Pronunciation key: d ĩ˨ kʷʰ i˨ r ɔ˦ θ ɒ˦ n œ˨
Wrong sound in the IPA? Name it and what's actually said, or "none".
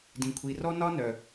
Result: θ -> n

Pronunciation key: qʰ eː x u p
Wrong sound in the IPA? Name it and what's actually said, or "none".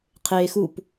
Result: none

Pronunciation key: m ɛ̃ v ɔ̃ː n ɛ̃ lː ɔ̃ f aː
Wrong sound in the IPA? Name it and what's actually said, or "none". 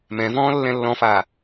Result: n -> lː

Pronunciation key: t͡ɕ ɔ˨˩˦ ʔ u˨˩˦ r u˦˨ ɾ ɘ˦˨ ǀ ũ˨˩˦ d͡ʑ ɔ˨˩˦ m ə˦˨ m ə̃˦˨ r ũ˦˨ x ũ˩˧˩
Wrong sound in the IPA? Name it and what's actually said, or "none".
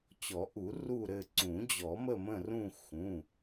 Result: none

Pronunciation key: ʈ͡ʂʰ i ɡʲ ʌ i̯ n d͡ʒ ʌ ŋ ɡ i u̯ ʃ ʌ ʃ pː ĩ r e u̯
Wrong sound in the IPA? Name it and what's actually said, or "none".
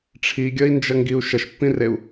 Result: none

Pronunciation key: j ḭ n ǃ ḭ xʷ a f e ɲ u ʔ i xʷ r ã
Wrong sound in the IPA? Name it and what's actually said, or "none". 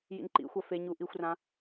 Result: none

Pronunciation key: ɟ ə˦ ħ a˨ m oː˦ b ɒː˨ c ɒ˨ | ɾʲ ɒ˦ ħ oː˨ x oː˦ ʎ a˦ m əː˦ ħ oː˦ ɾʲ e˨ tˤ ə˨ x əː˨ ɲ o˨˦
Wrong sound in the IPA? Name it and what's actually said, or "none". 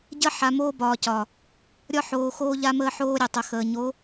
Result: none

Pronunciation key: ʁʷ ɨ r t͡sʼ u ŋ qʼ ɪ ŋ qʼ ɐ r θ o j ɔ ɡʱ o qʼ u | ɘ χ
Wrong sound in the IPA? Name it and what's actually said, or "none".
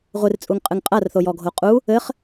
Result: ɪ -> ɨ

